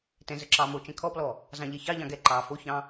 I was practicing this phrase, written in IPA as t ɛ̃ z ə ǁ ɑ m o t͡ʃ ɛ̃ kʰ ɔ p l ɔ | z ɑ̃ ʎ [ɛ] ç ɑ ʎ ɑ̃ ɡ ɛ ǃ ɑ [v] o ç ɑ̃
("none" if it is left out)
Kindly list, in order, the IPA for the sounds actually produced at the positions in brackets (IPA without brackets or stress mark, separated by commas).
ɛ, f